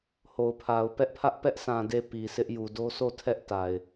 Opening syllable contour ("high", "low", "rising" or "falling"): low